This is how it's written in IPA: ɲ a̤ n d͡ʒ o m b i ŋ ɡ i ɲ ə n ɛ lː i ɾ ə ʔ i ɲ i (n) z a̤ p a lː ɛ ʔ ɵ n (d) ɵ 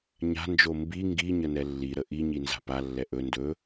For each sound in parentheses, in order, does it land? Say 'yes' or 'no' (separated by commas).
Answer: yes, yes